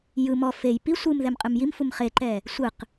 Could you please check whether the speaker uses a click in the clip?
yes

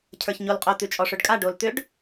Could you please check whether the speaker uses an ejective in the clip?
yes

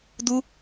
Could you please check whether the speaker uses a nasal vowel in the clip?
no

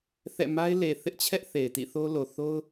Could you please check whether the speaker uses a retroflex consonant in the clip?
no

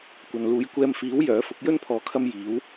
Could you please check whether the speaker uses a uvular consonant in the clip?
no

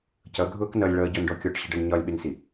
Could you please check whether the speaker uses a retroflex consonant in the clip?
yes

